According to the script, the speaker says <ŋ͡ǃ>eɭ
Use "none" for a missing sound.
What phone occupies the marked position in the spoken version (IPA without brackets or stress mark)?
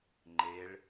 ŋ͡ǃ